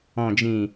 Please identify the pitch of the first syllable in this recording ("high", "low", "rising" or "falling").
low